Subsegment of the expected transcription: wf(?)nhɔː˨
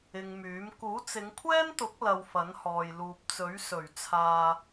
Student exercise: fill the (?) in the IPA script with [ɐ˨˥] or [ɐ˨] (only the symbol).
ɐ˨˥